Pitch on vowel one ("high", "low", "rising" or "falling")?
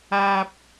low